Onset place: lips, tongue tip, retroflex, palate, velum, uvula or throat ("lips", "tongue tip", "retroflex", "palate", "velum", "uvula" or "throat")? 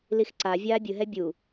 tongue tip